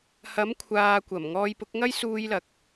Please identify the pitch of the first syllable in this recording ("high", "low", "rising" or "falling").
rising